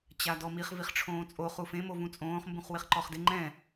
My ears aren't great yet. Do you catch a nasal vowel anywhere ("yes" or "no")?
yes